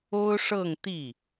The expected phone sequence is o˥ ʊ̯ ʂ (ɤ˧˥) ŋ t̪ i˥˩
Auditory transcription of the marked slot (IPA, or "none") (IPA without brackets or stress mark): ɤ˥˧